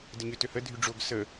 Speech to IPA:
d ə ɲ ø t ø h ə dʱ y ɖ͡ʐ o ɡ s ə

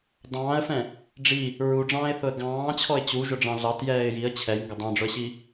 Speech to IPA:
dˤ ɑ̃ː ə̯ f ɛ̃ | ɖ͡ʐ i | ɹ u ɖ͡ʐ ɑ̃ː ɪ̯ θ ʊ ə̯ ɡ ɑ̃ː t͡ɕʰ ɔ ɪ̯ t͡ɕ u ʒ ʊ ɖ͡ʐ ɑ̃ ɮ ɑ t j ɛː ɪ̯ j i ə̯ t͡ɕʰ ɛ j ŋ ɡ ʊ dˤ ɑ̃ ɖ͡ʐ ʊ ə̯ ɕ i

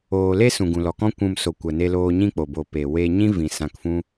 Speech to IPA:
oː˨ l e˦ s ũ˨ ɡ ũ˨ l ɔ˨ k ɔ̃˦ kʷ ũ˨ m s o˨ kʷ ə˨ n e˧ l oː˧ ɲ ĩ˦ k͡p o˨ b o˨ p e˨ w e˧ ɲ ĩ˦ v ĩ˨ s ã˧ k f ũ˦

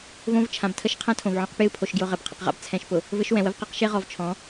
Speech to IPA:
v õ˦ v t͡ʃʰ ã˨ b tʰ ə˦ ʃ qʰ ã˦ tʰ õ˨ v ʕ ɔ̃˦ q p j ɨ˦˨ pʰ o˨ ʃ ɡ j ʊ˨ ʁ ɘ˨ b qʰ ə̰˨ q ʁ a̰˦ b t͡sʰ ɛ̃˨ ʃ p ʊ˨ | v ɘ˦ ʃ w ɛ̃˨ w ə˦ v q a˦ q ʃ e˦ ʁ ɔ˨ v t͡ʃʰ ɔ̃˨˦

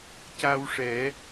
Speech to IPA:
c a˧ w ʂ ɛ˨˩˦

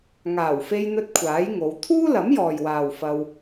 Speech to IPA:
ŋ aː˨˩ w f e˧ j n̪ ɵ˧ t̚ kʷʰ aː˨˥ j ŋ o˨˧ w t̪ʰ uː˥ l ɐ˨˥ m j ɔː˨ j w aː˨ w f ɐ˧ w

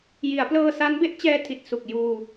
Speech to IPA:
j i˩˦ a̯ p l ɤː˧ s a˦˥ n b e˥˩ ʔ t͡ɕ ɛː˧ tʰ i˨˩ t̚ s u˨˩ k̚ j uː˧

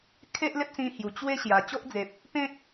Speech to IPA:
kʰ e˦ ʔ l e˦ p̚ s ĩ˧ h j u˨˩ t͡ɕ w e˦ ɕ j a˨˩ t͡ɕ o˦ ʔ d͡z e˨ p̚ | p ẽ˦ k̚

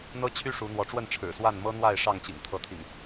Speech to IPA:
n̪ ɤ˦ t͡ɕʰ y˦ ʂ u˨˦ n̪ w ɔ˨˦ ʈ͡ʂ w ə˥˨ n ʈ͡ʂʰ ɻ̩˨˩ s w a˥˨ n m ɤ˦ n̪ w a˥˨ ɪ̯ ʂ ɑ˥˨ ŋ t͡ɕ ḭ˨˩ ŋ t̪ʰ ɤ˨˦ t̪ʰ ḭ˨˩ ŋ

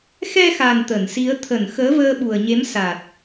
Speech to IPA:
x ɛ˧ x a˨˩ n t̪ ə˧˩ n s i˨˦ ə̯ t̪ʰ ə˧˩ n x əː˨˦ v əː˧ ɓ u˨˩ ə̯ ɲ e˨˦ m s a˨˩ t̚

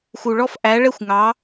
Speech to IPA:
x u˧ ɭ ɔ˥ f ʔ æ˧˥ ɭ ɛ˥ xʷ ŋ ɑ˧˥

